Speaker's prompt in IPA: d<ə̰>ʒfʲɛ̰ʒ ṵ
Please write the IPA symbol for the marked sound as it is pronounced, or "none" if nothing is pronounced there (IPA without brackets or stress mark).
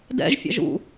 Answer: ɛ̰